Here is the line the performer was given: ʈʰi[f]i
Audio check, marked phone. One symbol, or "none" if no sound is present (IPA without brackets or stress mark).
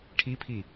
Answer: pʰ